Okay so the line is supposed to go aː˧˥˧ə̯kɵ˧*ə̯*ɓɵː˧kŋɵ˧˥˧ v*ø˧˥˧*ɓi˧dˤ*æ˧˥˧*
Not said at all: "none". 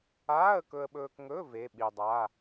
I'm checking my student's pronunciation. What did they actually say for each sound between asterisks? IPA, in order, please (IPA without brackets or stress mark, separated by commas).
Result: ə̯, e˧˥˧, a˧˥˧